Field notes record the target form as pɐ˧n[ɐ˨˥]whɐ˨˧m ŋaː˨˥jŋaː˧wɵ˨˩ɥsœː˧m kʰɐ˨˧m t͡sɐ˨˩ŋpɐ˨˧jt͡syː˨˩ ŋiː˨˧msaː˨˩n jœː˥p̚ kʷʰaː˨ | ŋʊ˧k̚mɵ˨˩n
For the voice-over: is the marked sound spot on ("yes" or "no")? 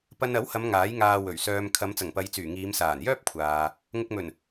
yes